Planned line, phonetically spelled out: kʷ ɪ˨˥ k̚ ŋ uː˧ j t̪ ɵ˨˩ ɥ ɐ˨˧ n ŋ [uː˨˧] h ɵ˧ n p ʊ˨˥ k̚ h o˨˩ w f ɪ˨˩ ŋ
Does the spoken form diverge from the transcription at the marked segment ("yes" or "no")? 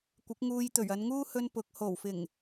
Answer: yes